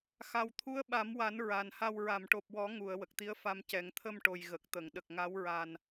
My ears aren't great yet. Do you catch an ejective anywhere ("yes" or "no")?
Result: no